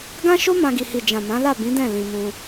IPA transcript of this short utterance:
ɡã˦ʃo˦ mã˧ɡi˨ hi˨ d͡ʒã˨ mã˨˦la˦˨bĩ˨˦dɛ̃˦˨ lĩ˧mũ˧

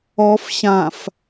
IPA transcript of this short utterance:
ɔf ɕãf

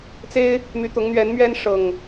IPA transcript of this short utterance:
t͡se˦ɪ̯ | my˨˦t̪ʊ˨˦ŋn̪ɥɛ˨˦nmɥɛ˦n ʂɤ˨˩ŋ

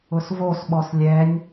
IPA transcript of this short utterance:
ʊsvosɓɔs lʲɛnʲ

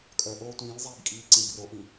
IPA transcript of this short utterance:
kʼœʔoː tʷĩːlzˤiːb kʼiːǀĩbroʔĩ

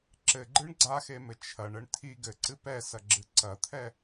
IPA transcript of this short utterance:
ǁɘɡ͡ǃɨɳ ɡ͡ǀaxemɘ t͡ʃʰɐɳɘɳ tʰi ɡɘǀɨ pɛsɐɡ͡ǁɨ ǀɐt̪ʰɛ

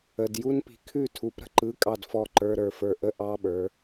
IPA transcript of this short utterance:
ə˧˥˧d ju˦˥npi̤˨˦ kʰʉ˥˩tʰu˨˦p ɾə̤˦˥ǃɯ˧˥˧kʼɑ˥˩d fɔ˥˩ǃə˞˧˥˧ɾə˞˥˩fə˞˥˩ ʔə˦˥ ʔɑ˧˥˧ɓə˞˨˦

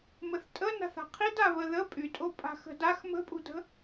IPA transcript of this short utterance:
məθtʼə na̤θa̤qʰida βəðə pʼytʼo pʼa̤xə̤dax mə̤pʼṳdə̤

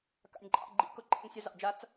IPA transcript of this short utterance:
ka̰˨nʲǃʼɑ̰˦˨ɡ͡ǃḭ˧ kʊ˦ǃʼḛ˦ŋsʲa˦ zɑ̰˨d͡ʒa˧t͡s

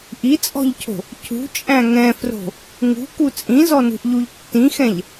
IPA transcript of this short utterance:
ʔit͡sʼɔ̤ʎcʰo̤ | cʰṳt͡ʃʼæ̃ ŋɛ̃fro̤ | ŋṳku t͡sʼĩzɔnṳʔʎuʎ tːĩxɛ̃ʎ

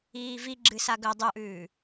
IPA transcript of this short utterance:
iːvi ɡ͡ǁɨsaɡɵ dˤuʔʉː

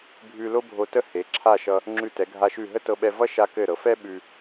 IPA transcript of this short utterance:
bʱʉ˧lo˥bʱo˧tə˥˧ he˩˧ǁʰa˥˧ ʃʌ˧ | ŋ͡ǁʉ˧˩tɛ˩˧ɡʱa˧ ʃʉ˧˩ɦə˥tɤ˧ɓɛ˧ vʌ˥ ʃa˧kɘ˧˩ɾɤ˩˧fɛ˥ ɓʉ˧

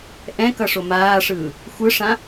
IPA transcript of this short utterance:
ʔɛ̃kʌʂo maːʂɯː | xʷɯʂã

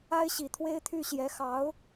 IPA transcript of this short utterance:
a˥ɪ̯ɕi˨˩t̪ʰwe˥ɪ̯t̪ʰy˥˩ ɕjɛ˧˥xɑ˧˥ʊ̯

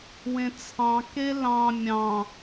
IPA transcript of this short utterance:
wẽt͡sʰɑ̃ kelɑ̃ mʲɑ̃

